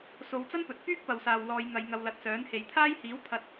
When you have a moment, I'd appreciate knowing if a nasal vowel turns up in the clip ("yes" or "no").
no